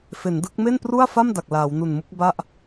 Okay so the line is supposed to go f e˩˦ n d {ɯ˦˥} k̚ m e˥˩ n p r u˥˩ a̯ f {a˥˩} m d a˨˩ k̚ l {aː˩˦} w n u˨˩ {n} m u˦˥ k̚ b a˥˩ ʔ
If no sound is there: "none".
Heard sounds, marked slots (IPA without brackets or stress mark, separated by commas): ɯ˦˥, a˥˩, aː˩˦, n